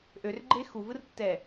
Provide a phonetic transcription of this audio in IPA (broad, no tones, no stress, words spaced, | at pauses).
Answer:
ʔørɡ͡ǃe xuvɯrtːɛ